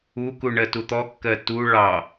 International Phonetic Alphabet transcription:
u k u ɳ ɜ t u t̪ ɔ kː ɜ t u ɭ ɑ

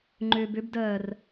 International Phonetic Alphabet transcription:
ŋ͡ǃ ʏː b ʏ b d ɜː r

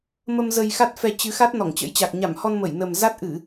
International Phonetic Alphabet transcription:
m ə˧ m z ə˧ j x a˦˥ t̚ f ɛ˧ t͡ɕ ɨ˨˦ x a˦˥ t̚ n ɔ˧˩ ŋ t͡ɕ ə̰˧˥ j t͡ɕ a˨˩ k̚ ɲ a˧˩ m h ɔ˧ n m ə˧˩ j n ə˨˩ m z a˦˥ t̚ ʔ ɨ˧˩˨

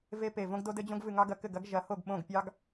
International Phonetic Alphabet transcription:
v e˦ p e˧˩ v õ˦ ɡ d o˦ d ɘ˦ d͡ʑ õ˦ ɡ v ɨ˧˩ ŋ ɑ˦ ɡ ɐ˧˩ k ɘ˥˩ ɡ ɐ˦ ɡ ʒ ɐ˩˥ h o˥˩ ɡ ɓ õ˥˩ ɡ pʲ ɑ˦ ɡ

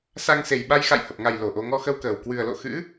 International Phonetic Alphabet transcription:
s a˧ ŋ s e˨˩ j ɓ a˧ j x a̰˧˨ j h ə˨˩ p̚ ŋ a˨˩ j l o˧˩ ʔ o˧ ŋ ɔ˧ x ə˧ w k əː˨˩ w k w ɨ˨˩ ə̯ l o̰˧˨ x ɨ̰˧˥

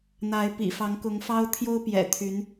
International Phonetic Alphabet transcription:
n̪ a˧˥ ɪ̯ p ḭ˨˩ f ɑ˧˥ ŋ k ʊ˧˥ ŋ f ɑ˥ ʊ̯ t̪ʰ j o˥ ʊ̯ p j ɛ̰˨˩ t̪ʰ y˧˥ n

